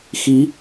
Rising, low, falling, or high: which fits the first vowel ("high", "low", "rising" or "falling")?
rising